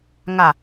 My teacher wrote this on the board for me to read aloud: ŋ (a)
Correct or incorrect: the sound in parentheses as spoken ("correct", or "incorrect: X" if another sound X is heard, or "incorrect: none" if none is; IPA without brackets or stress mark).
correct